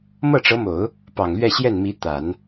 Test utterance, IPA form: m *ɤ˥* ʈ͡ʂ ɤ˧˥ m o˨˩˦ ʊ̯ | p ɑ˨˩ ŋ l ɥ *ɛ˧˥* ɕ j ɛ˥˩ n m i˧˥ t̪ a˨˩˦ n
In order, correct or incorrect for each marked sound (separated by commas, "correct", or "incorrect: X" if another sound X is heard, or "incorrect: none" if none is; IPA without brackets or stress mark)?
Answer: incorrect: ɤ˥˩, incorrect: ɛ˥˧